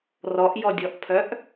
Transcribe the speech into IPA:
r ɔ ʔ j ɔ dʲ ɔ ʔ pʰ œ ʔ

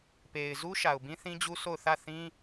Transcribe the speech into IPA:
p e˨ ɪ̯ z u˦ ʃ a˨ ʊ̯ b ĩ˦ θ ĩ˦ d͡ʑ u˦ s o˦˨ ʊ̯ θ ä˦˨ θ ĩ˦

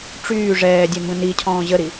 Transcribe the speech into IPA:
ʈ͡ʂ yː ʐ ɛː dʲ ɛ m b ə̃ n i cʰ ɔ̃ː ʑ ə ɾ i

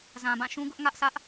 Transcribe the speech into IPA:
z ã˨ b ã˦˨ ʃ ũ˦ ɡ ʊ˦ ʔ ŋ ä˦ ʔ sʰ ä˦ ʔ

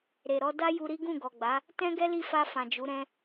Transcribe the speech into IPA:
ɾ e˨ ɾ ɔ˧ d a˦ j u˧ ɾ i˦ ɡ ũ˦˨ ɡ ɔ˨ ɡ͡b a˨˦ | t ɛ̃˦ ɡ ɛ˦ l i˦˨ f a˧ f ã˨ d͡ʒ u˨˦ ɾ ɛ̃˦

